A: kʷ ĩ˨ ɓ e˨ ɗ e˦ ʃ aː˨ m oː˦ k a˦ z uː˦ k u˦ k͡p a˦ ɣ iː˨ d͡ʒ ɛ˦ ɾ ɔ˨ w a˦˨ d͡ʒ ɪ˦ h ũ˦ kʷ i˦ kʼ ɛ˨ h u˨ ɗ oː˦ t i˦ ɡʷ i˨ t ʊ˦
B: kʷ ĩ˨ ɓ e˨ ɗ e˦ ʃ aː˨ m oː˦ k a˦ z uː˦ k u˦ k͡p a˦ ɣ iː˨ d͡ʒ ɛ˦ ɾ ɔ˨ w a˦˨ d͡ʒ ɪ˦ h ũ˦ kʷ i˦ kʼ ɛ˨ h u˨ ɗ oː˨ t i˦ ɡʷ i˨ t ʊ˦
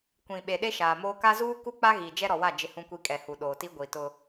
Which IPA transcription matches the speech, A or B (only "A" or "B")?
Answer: B